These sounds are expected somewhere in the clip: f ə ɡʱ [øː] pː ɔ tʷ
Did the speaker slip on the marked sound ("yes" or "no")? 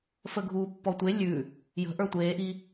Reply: yes